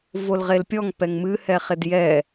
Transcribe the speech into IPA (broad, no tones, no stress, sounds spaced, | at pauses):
v o l ʁ e l pʲ ɔ ŋ p ɛ ŋ m ɨ h ɛ χ e d j ɛ